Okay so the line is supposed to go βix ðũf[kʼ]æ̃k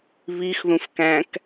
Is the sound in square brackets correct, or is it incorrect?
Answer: incorrect